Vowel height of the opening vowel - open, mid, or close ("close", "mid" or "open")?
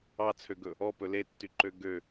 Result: open